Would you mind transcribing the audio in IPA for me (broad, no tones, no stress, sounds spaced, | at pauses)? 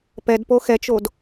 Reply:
p ɛ d p o x ɛ t͡ʃ o d